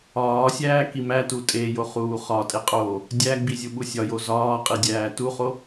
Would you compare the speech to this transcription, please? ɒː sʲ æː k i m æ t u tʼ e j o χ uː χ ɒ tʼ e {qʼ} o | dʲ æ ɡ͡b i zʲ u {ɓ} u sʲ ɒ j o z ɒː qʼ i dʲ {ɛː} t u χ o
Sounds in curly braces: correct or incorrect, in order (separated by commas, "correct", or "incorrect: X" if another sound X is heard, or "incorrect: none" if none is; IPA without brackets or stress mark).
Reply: correct, correct, incorrect: æː